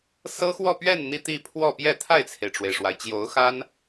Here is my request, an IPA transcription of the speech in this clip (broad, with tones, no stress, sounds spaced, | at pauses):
s ɤ˥ x w ɔ˥˧ p ɥ ɛ˥˧ n n̪ i˥˧ t̪ i˥˧ pʰ w ɔ˥˧ p j ɛ˥˧ t̪ʰ a˥˩ ɪ̯ t͡sʰ e˩ ɪ̯ ʈ͡ʂ w e˩ ɪ̯ ʂ w a˩ ɪ̯ t͡ɕ j o˧˥ ʊ̯ x a˥ n